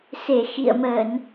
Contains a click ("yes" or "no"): no